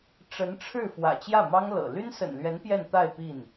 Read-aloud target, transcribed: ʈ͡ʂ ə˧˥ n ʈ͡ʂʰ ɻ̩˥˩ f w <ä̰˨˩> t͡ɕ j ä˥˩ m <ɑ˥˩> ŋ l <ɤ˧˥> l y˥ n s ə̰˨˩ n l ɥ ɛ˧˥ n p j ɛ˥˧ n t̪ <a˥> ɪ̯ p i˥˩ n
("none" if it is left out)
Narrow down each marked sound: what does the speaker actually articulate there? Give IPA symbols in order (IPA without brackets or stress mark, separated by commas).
ä̰˨˩, ɑ˥, ɤ̰˨˩, a˥˧